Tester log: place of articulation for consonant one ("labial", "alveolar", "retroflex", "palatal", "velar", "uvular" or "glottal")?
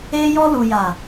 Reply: palatal